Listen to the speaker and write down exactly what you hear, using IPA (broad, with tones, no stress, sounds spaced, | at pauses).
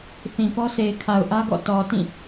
θ ĩ˨ p ɔ˦ sʰ e˨ ɪ̯ kʰ a˨ ʊ̯ ʔ ä˦ ɡ ɔ̰˦˨ t ɔ˨ t ĩ˦˨